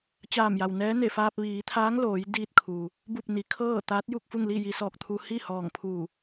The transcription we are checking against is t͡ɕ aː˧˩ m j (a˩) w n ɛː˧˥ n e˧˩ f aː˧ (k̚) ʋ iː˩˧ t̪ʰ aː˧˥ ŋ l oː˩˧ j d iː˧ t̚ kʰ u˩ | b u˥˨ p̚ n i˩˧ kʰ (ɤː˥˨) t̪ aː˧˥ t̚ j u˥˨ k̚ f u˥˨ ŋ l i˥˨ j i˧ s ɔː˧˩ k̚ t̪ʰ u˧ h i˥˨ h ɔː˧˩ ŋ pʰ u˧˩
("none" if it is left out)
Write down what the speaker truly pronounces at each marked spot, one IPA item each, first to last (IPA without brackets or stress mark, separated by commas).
a˩, p̚, ɤː˥˨